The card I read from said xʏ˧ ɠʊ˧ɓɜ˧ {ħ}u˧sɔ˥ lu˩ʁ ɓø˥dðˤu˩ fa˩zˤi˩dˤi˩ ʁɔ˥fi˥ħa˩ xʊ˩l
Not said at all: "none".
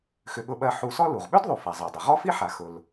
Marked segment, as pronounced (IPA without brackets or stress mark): ħ